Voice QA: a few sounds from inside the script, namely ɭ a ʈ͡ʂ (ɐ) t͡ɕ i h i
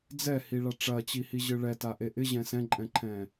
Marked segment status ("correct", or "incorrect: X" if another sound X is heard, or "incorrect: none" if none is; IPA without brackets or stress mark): correct